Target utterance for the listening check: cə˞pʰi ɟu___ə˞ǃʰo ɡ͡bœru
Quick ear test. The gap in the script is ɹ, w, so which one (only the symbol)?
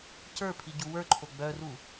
w